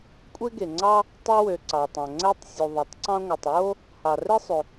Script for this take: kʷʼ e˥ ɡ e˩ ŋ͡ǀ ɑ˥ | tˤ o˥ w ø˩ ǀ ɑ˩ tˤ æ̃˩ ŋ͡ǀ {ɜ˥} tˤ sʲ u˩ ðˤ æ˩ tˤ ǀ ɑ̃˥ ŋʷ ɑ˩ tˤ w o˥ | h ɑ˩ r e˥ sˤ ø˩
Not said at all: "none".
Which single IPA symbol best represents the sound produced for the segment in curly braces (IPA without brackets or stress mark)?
æ˥